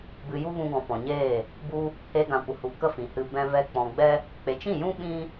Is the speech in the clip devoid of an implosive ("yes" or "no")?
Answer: no